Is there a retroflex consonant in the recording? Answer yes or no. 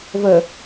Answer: no